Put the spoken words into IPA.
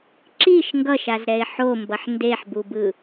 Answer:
ǁ i ʃ ŋ ɡ ʌ ʃ a z ɾ ɛ ɪ̯ ħ o m b ʌ ħ n d e ħ b u b ɯ

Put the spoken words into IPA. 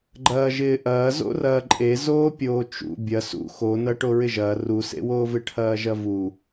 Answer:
ɡ͡ǃ ɐː ʒ ɪː ʔ ɐː z o̰ r ɐː ǃʼ e z oː pʲ oː t͡ʃ ṵ bʲ ɐ s ṵ x o n ɐ ʈ o ɹ ɪ ʒ ɐː r u s ḛ w oː v ɪ ʈʰ ɐː ʒ ɐ v u

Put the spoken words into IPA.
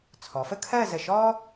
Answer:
t͡sʰ ɔ˩˧ f ə˥˧ kʰ ɜ˥˧ z ə˧˩ ʃ ɔ˥

